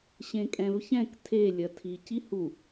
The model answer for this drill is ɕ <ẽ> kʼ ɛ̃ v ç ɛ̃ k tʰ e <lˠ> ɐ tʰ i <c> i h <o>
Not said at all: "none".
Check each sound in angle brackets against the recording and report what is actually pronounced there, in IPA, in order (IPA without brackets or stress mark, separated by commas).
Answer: ẽ, lʲ, c, u